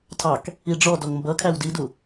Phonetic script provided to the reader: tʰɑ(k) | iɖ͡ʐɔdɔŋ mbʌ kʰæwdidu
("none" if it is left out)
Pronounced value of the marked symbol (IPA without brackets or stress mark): k